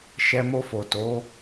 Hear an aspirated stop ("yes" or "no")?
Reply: no